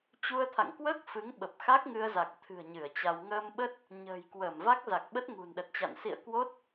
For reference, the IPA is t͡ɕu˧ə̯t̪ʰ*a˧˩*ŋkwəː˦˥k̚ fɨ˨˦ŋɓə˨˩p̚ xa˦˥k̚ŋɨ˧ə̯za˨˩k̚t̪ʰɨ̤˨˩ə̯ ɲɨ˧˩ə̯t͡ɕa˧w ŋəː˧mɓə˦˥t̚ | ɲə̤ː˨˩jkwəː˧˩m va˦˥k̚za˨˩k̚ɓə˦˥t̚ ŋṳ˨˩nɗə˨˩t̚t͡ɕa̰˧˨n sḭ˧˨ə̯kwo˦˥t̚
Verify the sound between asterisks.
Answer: incorrect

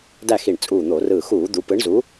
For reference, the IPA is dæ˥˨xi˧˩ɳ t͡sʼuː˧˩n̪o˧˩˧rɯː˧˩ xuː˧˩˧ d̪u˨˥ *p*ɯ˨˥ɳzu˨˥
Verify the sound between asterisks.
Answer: correct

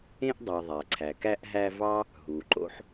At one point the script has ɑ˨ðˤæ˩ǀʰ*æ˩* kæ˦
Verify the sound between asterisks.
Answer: correct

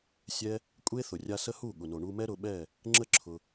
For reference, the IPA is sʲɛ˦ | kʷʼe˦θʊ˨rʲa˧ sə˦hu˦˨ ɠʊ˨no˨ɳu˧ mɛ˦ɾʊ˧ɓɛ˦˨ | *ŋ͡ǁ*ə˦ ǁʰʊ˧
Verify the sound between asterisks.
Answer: correct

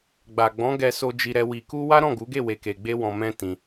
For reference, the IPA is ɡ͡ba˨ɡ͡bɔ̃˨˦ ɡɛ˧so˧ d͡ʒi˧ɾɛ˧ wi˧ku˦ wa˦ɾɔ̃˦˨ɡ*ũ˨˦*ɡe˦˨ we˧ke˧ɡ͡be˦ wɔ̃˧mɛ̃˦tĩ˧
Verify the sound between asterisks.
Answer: incorrect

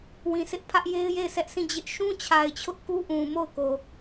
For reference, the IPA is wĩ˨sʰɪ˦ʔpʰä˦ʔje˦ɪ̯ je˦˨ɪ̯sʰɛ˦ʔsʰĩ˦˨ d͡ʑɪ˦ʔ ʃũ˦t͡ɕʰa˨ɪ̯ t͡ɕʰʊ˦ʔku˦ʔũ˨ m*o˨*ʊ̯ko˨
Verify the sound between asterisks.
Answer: incorrect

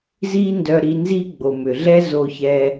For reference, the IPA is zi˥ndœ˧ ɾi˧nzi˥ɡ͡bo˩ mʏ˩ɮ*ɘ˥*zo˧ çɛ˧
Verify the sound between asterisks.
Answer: incorrect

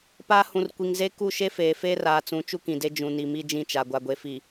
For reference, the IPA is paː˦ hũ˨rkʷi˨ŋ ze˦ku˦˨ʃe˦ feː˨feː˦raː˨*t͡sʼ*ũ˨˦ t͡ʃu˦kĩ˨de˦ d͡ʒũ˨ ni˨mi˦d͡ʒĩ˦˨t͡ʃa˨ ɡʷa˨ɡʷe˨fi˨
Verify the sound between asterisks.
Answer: incorrect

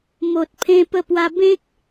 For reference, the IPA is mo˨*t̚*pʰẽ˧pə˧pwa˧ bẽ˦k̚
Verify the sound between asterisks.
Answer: correct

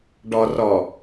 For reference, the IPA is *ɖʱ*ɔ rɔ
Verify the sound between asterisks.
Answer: incorrect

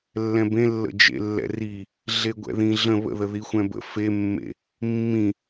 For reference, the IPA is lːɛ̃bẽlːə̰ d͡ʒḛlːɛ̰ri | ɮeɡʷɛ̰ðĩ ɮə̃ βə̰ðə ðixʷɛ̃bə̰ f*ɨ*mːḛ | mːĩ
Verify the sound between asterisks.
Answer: incorrect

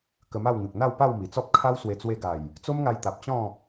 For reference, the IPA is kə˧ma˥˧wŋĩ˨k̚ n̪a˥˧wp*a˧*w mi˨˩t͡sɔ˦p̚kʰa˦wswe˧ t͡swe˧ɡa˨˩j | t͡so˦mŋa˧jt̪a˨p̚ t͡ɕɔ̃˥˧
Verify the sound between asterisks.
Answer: incorrect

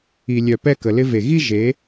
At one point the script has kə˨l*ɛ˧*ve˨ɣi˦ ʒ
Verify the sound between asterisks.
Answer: incorrect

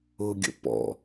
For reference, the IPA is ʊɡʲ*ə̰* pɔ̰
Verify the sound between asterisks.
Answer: correct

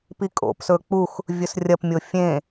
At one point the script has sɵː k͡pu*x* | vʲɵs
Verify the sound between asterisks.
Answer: correct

